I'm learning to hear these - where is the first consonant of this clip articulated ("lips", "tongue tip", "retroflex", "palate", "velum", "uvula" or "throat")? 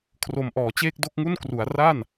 velum